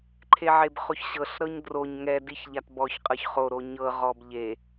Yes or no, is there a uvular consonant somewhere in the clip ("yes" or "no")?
yes